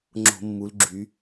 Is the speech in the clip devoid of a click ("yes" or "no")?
no